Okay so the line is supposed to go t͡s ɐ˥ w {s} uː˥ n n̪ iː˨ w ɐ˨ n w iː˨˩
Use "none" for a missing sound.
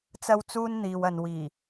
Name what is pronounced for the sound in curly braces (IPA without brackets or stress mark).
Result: t͡s